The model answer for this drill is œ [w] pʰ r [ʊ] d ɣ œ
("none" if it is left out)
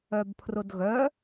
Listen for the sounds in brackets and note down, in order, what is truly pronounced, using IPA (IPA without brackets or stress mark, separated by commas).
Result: b, ʊ